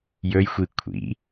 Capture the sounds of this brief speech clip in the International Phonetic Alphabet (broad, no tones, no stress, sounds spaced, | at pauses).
j ɵ j xʷ i kʷʰ ḭ